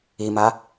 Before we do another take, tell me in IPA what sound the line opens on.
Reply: i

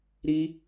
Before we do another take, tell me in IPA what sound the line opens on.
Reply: ɾ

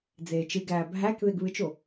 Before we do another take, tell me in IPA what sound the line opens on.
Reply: d͡z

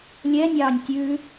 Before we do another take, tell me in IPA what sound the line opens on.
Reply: lʲ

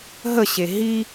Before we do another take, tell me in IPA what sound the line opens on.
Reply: ɦ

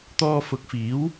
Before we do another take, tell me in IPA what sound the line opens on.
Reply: t̪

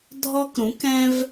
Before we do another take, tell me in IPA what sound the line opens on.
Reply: dʱ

